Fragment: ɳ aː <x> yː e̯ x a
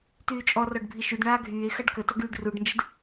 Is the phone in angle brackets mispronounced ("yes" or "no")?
yes